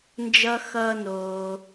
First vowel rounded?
no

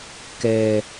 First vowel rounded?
no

